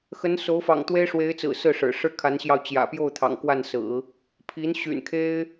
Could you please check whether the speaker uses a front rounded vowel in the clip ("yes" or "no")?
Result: yes